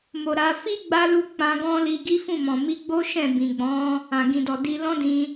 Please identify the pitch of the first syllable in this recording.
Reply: low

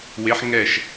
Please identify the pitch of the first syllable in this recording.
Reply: rising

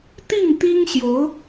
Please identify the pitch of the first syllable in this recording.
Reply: falling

